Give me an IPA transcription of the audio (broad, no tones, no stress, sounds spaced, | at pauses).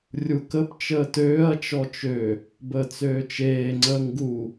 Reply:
rʲ u k ə p t͡ʃ əː t øː ɐ̯ t͡ʃ ɔ t͡ʃ ø | b əː t͡s øː t͡ʃ eː ŋ͡ǀ əː ŋ ɡ u